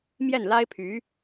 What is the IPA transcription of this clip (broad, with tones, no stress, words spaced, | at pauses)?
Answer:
mjɛ˥˩nla˥ɪ̯pʰy˧˥